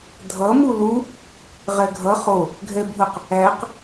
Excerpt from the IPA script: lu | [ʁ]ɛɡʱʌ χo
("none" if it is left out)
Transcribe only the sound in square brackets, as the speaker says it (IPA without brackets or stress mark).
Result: ʁ